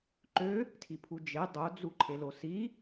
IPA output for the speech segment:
ǃø | tʰipʰud͡ʒe dˤod͡zu ǃʰelosi

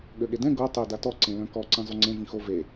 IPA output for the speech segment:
ɠøɠedɛ̃ ɡo tˤø datɔ ǀẽlœ̃kɔ ǀĩzˤyŋ͡ǀẽ vĩxo ve

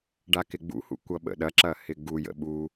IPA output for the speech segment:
ɖakɪɡ͡bṵhṵ kʷʌɓə̰ɗɐǁɐ hɪɡujə̰ ɓu

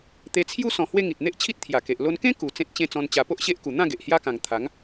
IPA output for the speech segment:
t̪e˧t͡sʰju˦ sɔ̃˧hwe˦ ŋi˨t̚n̪e˦ʔt͡ɕʰi˦t̚ t̪ʰja˨˩ke˨ʔ lo˧nkẽ˦ ku˨˩ t͡sẽ˦t̚t͡ɕẽ˦ t͡sɔ̃˧nt͡ɕa˧ po˦ʔɕe˦ʔku˨˩ n̪ã˥˧ɡe˨ʔ hja˦kã˨˩ŋ t̪ʰa˨˦ŋ

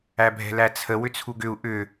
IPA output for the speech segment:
æbʱɛ̤læt͡sʰə wʏt͡sʰuɡʏu̯ ʔʏ

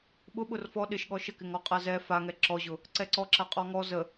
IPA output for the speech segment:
ɓʊɓʊr fɔ ɗɪʃɠɔ ʃəkɪŋɔqʼa zɛ faŋɛ ǁɔʑʊ | ǀɛǀɔ ǁaqʼɔŋɔ zə

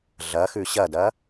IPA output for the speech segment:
ɮɐxʉ ɕɐdɐ

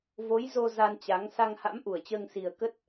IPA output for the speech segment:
vo˨˦jzo˧ za˧nt͡ɕa˨˦ŋ sa˧ŋha̰˧˥mʔu˧˩ə̯t͡ɕəː˧ŋ si˨˩ə̯kə˦˥t̚

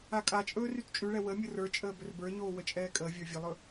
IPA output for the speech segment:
akʼat͡ʃʼɵː rytt͡ʃʼyɭɛ wə mʲʊrə˞t͡ʃʼəː bɵrbə˞ɲoː wət͡ʃʼɛːkʼəːvʲə˞ vʲɵlˠɵ

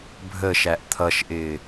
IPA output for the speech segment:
bʱəʃæʔ t̪ʰʌʃʔɪː

